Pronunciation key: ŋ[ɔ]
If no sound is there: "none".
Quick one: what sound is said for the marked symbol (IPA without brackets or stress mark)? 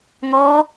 ɔ